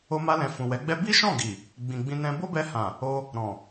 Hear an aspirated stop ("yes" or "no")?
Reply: no